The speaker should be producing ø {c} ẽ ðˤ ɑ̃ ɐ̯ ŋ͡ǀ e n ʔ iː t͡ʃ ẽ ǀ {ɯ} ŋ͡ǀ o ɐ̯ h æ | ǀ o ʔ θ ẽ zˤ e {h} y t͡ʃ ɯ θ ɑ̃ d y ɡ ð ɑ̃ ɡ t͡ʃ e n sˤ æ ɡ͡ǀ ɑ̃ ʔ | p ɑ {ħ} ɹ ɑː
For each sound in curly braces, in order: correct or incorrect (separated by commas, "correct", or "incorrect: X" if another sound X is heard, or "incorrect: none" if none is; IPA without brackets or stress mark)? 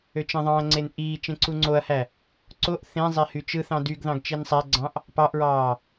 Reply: incorrect: t͡ʃ, incorrect: u, correct, incorrect: ʔ